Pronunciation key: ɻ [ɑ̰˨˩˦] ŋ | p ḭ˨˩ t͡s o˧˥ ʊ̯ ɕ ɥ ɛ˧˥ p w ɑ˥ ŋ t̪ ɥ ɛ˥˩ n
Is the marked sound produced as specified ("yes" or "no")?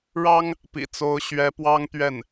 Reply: no